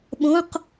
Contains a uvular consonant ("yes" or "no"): yes